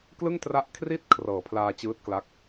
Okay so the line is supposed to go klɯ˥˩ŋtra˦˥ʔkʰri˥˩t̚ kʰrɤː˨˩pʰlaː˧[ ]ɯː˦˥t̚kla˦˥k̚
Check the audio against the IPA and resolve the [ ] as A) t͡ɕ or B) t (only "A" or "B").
A